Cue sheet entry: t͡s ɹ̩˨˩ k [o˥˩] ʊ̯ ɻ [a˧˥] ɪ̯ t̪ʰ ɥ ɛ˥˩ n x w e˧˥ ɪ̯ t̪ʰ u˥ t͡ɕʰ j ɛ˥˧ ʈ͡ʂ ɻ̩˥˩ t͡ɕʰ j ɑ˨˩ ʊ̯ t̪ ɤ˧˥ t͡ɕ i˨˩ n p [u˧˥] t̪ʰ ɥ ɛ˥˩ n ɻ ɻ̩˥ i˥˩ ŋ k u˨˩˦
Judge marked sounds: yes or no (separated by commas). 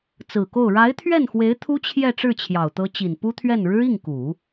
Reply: yes, yes, no